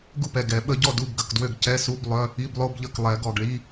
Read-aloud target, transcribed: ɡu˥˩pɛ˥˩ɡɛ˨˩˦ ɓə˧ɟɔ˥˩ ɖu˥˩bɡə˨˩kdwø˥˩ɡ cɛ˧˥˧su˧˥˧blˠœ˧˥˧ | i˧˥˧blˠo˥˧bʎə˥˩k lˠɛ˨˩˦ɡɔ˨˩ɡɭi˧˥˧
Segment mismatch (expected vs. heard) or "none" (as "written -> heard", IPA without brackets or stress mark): ɖ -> d